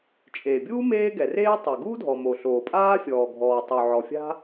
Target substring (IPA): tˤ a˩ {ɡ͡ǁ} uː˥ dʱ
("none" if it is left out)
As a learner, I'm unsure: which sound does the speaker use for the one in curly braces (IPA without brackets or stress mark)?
ɡ